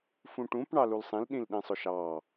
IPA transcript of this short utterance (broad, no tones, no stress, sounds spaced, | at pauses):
f ũ ʈ ũ p ɳ ɑ l u l sˤ ĩ l ɗ ĩ l ɗ ĩ sˤ ʊ ʃ ɑ